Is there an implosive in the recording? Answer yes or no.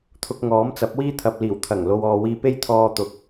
no